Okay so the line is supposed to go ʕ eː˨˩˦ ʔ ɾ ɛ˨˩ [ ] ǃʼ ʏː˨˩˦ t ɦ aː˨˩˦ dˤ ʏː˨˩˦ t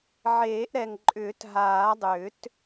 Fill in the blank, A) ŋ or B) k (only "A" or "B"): A